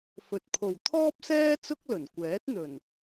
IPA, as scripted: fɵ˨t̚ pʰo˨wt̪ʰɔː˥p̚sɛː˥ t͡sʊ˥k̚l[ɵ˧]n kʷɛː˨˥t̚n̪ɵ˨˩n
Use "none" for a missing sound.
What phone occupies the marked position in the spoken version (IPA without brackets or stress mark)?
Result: ɵ˨˩